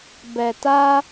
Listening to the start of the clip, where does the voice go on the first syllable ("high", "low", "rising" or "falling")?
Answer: low